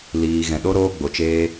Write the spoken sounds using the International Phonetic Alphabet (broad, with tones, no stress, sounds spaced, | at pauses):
l iː˧ ɣ ɛ̃˨ ɗ o˦ ɾ oː˦ ɡ͡b o˨ t͡ʃ eː˦